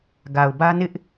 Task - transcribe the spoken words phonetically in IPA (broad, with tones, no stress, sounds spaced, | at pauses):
ɡ a˨ ʊ̯ b ä˦ n ɪ˦ ʔ